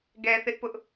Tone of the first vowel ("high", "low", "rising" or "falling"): low